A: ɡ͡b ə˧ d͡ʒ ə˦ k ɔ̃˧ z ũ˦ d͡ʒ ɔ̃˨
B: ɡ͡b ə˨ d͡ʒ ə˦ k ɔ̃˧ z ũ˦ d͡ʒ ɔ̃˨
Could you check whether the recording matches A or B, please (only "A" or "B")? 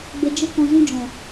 A